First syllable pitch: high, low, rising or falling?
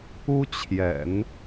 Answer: high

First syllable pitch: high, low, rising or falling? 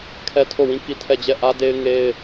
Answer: high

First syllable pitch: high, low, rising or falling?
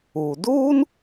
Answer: low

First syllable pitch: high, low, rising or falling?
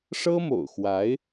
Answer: high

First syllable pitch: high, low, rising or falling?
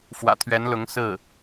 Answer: low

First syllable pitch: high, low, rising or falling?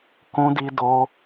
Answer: high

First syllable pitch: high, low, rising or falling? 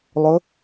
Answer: rising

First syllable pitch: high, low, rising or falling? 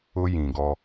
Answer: high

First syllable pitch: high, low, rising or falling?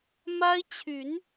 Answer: high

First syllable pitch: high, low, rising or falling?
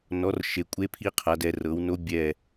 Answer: rising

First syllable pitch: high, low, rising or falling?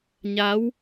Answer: rising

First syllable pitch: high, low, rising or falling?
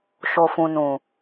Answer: low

